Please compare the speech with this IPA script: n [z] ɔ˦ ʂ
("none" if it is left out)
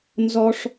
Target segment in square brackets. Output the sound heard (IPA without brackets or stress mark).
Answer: z